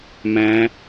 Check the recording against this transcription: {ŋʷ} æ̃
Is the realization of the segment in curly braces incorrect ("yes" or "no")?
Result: yes